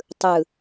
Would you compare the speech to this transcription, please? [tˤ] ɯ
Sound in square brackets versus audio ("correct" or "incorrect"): correct